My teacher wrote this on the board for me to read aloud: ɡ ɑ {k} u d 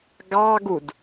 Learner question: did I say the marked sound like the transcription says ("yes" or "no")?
no